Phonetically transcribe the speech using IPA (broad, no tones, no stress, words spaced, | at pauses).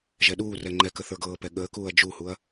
ʒɛɗuːrɛ ŋ͡ǃɛkə θə˞ɡɤːpɛ ɠəːkuːɐ̯ d͡ʒuhuɐ̯